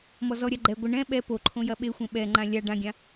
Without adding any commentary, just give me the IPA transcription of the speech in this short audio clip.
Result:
mɔzɔɾʲa ɡ͡ǃɛ ɡʷɘ ɳɛ̃ ɓɛ poǃʰõ jɐɓexʷẽ ɓɛŋ͡ǃã lʲa ɖãɡʲã

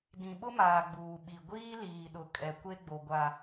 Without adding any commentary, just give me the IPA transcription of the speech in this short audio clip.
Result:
dĩ˨ɓʊ˦maː˨ ɡ͡buː˨ɓi˨ ɡʷiː˦liː˨ɗʊ˨ kʼɛ˨ kʷe˦ɡ͡bo˨ɡʷa˨

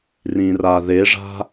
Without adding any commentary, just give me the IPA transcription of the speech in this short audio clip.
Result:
rĩraðeʐa̤

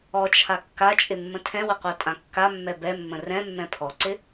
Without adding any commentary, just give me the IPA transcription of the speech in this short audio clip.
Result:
ɔt͡ʃʰa kːat͡ʃʼɪmːə̃ tʰɛ̃wəqʷatʼã kːamːɛ bɛmːə̃ rɛ̃mːɛ̃ pʰɔǀɪ

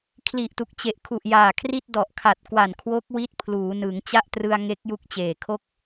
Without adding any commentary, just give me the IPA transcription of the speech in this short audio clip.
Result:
kʰli˨˩ʔtu˨˩k̚t͡ɕe˨˩ʔkʰu˨˩ʔ jaː˨˩kʰri˥˩t̚ dɔ˨˩ʔkʰa˨˩t̚kwa˨˩n kʰwo˦˥k̚wi˦˥t̚ pʰluː˩˦ nɯ˩˦ŋ t͡ɕa˥˩ʔtrɯ˧a̯ŋe˦˥k̚ ju˦˥k̚t͡ɕeː˨˩kʰo˥˩k̚

